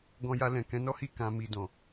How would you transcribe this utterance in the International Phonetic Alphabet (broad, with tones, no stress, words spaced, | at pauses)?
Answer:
ɡɔ̃˧ja˧ lɛ̃˨kɛ̃˨˦ nɔ˦hi˦˨ kã˨˦mi˧ dɔ̃˨